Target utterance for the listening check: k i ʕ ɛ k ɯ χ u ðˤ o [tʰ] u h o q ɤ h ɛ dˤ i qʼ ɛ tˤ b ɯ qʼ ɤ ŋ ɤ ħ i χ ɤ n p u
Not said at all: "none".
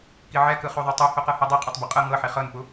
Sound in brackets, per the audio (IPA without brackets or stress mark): tˤ